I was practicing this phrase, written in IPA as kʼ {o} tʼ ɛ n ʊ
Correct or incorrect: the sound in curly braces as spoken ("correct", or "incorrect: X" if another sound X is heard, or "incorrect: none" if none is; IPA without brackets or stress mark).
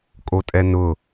correct